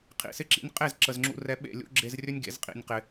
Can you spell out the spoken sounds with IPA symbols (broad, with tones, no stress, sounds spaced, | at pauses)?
qʰ ḭ˨ s ɪ˧ ǁ ḭ˧ nʲ qʼ e˦˨ z ǁ ə˨ z ŋ͡ǁ ṵ˧ r ɛ˧ ɓ ḛ˦˨ lʲ ṵ˦ ɡ͡ǁ e˧ z rʲ ɵ˦ nʲ ɡ ḛ˨˦ z qʼ ḭ˧ nʲ q ɪ˧